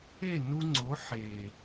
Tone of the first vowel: falling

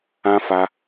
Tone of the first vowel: high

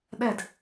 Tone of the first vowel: falling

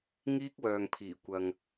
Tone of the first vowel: high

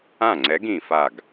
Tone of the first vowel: falling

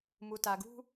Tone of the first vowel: low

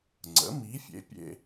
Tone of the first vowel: rising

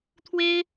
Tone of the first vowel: high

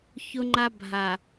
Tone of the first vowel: high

